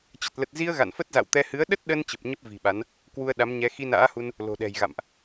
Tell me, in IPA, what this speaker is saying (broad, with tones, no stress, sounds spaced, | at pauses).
t͡ɕ ə˨˩ t̚ l ə˨˩ t̚ z i˧ ə̯ ɣ a̰˧˨ n f ə˦˥ t̚ z a̰˧˨ w t̪ ɛ˧ h ɨ˨˦ ə̯ ɗ ə˦˥ t̚ ɗ ə˧ n t͡ɕ ə˨˩ p̚ ɲ ə˦˥ p̚ v i̤˨˩ ɓ a˨˦ n | k w u˧ ə̯ ɗ a˨˦ m ɲ ɛ˨˦ x i˧ n a̰ː˧˥ h u˧ n | l o̤˨˩ ɗ ɛ̤˨˩ j ɣ a̰˧˨ m ʔ